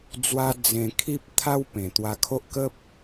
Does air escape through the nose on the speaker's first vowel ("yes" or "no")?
no